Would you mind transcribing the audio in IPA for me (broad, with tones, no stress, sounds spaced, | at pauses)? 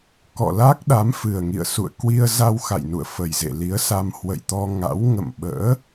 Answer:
k ɔ̰˧˨ l a˦˥ k̚ ɗ a˨˦ m f ɨ˨˩ ə̯ ŋ ḭ˧˨ ə̯ s ṵ˧˨ ə̯ k w i˧ ə̯ z a˧ w x a̰˧˨ j n ṵ˧˨ ə̯ f ə˨˩ j z ḛ˧˨ l i˨˦ ə̯ s a˧ m h w ə̰˧˨ j t̪ ɔ˧ ŋ a̰˧˥ w ŋ ə̰˧˨ m ɓ ə̰ː˧˥